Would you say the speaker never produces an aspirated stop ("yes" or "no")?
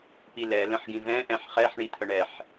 no